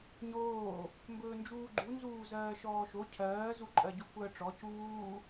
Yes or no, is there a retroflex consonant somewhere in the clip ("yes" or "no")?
yes